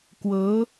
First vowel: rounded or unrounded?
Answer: unrounded